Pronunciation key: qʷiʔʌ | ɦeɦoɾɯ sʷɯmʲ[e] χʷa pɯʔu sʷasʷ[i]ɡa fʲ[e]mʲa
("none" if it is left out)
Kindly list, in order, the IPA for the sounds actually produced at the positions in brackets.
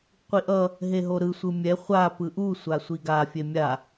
ɛ, i, e

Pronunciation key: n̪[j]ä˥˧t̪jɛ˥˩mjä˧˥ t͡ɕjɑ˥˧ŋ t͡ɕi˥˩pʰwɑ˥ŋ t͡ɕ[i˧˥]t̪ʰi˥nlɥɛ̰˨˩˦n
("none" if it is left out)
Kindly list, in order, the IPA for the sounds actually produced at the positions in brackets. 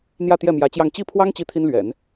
j, i˥

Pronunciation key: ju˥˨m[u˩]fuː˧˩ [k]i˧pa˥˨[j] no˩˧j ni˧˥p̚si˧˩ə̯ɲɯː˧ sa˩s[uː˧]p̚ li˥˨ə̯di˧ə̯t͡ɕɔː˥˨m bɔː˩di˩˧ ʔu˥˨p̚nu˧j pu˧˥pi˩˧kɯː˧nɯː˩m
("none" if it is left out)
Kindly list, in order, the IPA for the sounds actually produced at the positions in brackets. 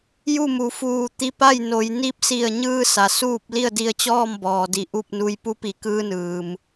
u˩˧, t̪, j, uː˥˨

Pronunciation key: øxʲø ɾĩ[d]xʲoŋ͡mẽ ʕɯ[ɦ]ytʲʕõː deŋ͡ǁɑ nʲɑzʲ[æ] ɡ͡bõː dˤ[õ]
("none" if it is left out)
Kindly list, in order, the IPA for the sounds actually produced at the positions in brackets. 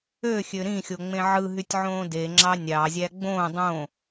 none, ɦ, æ, õ

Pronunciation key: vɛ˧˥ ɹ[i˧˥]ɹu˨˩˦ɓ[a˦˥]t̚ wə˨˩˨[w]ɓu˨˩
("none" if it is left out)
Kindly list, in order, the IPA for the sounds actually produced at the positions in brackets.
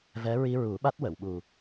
i˧, a˦˥, w

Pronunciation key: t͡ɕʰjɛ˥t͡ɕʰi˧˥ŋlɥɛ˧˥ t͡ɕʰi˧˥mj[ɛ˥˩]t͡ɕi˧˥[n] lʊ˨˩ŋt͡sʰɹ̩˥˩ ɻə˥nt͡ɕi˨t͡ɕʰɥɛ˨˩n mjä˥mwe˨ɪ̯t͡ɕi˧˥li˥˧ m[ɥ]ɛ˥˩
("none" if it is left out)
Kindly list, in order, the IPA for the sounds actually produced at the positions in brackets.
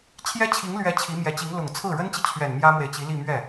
ɛ˧˥, ŋ, ɥ

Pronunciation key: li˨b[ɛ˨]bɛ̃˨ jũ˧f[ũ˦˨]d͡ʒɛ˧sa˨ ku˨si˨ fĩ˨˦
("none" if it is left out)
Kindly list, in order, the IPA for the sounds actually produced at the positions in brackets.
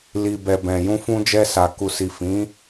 ɛ˨, ũ˧

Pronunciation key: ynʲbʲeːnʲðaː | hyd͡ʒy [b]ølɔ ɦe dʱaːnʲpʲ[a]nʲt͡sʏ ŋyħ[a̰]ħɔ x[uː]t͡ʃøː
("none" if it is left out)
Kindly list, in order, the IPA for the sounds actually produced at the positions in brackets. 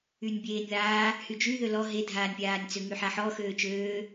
ð, aː, a, øː

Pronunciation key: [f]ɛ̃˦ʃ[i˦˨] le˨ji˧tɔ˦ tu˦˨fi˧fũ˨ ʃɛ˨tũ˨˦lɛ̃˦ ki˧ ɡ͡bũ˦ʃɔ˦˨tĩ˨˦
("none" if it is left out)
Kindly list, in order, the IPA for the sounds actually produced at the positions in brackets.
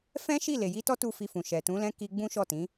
f, i˦˨

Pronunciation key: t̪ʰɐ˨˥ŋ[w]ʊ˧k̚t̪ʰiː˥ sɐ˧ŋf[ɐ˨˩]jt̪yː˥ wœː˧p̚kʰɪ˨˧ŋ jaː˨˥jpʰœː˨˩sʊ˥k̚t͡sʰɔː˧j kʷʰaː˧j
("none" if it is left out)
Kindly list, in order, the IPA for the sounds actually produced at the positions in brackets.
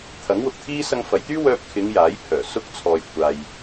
w, ɐ˨˧

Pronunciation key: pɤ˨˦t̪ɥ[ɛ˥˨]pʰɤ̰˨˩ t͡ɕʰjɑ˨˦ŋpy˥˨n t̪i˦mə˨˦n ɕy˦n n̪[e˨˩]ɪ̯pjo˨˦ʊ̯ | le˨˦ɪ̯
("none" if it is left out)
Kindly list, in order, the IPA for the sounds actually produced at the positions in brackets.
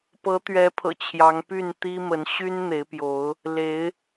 ɛ˨˦, e˨˦

